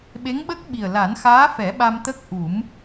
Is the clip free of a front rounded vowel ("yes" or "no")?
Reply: yes